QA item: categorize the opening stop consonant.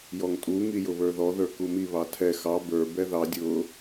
ejective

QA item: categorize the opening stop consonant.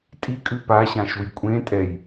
ejective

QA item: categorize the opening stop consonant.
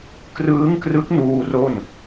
plain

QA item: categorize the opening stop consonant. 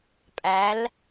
ejective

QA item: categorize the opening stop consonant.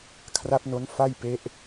aspirated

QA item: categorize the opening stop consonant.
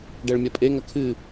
plain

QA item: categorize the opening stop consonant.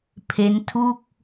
aspirated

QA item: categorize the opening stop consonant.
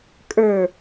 ejective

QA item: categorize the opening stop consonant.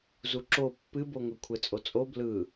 click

